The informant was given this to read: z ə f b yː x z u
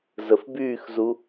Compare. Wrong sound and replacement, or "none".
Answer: none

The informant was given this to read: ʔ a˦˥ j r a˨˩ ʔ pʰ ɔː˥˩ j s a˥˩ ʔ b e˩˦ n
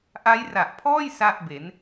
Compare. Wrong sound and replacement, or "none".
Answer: none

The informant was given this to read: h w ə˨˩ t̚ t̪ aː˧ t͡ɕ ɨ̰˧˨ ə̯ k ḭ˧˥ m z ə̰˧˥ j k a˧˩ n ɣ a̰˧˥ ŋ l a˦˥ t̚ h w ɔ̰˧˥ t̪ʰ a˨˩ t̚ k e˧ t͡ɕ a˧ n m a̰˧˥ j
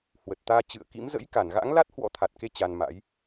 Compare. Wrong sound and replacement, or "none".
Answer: none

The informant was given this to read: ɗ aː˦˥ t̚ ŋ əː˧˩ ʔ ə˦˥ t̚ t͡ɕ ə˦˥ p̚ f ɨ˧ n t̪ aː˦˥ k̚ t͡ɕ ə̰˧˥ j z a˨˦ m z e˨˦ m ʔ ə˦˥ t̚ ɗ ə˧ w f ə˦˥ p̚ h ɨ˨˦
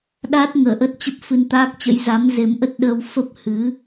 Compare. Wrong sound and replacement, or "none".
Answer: none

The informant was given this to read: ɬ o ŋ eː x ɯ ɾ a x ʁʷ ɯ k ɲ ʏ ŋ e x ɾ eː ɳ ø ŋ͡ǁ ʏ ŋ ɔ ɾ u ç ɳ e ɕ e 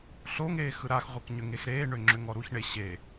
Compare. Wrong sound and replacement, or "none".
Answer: none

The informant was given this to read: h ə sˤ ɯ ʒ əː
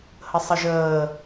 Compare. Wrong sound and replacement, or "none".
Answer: none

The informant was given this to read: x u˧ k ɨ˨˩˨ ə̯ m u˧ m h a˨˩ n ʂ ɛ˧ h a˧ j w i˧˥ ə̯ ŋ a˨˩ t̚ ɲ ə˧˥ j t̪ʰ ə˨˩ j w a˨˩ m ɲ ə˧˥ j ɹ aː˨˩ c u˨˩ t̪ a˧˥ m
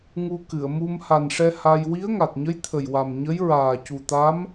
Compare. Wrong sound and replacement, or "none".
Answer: x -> ŋ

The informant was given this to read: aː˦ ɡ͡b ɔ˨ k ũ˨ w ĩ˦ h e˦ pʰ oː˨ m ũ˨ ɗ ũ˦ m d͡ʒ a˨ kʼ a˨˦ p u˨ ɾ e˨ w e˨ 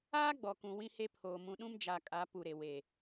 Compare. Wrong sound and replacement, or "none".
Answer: none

